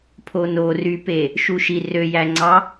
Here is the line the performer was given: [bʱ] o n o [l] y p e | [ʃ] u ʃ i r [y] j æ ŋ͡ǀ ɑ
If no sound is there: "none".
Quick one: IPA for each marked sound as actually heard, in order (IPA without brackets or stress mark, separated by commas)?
pʰ, r, ʃ, ø